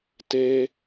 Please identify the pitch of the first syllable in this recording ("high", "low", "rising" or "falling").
high